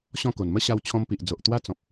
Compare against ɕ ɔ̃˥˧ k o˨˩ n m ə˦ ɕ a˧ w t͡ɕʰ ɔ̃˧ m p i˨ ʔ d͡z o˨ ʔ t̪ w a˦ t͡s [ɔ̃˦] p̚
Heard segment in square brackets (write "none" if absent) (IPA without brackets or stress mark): ɔ̃˨